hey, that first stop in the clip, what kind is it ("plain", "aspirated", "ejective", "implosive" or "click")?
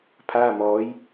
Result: aspirated